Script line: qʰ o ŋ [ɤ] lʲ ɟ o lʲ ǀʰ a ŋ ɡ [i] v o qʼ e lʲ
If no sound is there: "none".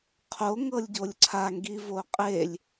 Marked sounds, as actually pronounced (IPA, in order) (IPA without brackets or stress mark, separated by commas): ɤ, i